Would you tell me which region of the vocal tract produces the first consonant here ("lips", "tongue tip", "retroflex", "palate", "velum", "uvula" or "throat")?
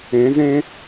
tongue tip